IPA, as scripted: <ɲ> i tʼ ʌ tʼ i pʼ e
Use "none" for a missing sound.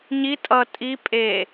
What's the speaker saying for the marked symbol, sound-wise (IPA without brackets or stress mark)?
ɲ